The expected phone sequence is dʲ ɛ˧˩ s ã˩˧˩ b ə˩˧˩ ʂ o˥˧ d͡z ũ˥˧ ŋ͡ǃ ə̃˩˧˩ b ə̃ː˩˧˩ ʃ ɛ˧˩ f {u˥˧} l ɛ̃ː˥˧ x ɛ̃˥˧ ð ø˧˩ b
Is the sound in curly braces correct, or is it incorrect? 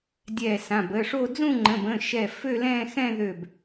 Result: incorrect